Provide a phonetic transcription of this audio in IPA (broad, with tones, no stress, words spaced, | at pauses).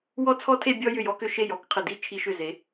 wɔ˥˧t͡sʰɔ˥tʰe˥˧ bʲɔ˥ jʏ˧˩jɔ˧kʏ˧˩ʃe˧˩j ɔ˥kqʰɘ˧˩di˥˧ t͡ʃʰi˧ʃʏ˧˩ze˩˧